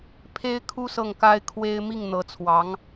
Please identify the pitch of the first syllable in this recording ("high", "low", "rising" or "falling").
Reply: high